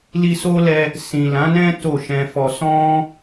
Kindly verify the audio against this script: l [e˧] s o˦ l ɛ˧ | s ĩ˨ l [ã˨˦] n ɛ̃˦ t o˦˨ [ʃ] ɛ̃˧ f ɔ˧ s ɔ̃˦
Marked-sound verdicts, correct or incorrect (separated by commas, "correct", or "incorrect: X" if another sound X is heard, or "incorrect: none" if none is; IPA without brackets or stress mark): incorrect: i˧, correct, correct